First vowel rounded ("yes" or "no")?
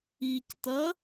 no